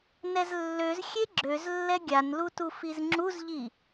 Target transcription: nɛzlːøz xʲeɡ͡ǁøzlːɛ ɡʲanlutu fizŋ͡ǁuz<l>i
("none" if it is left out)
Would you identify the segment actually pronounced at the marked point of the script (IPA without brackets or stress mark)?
ʎ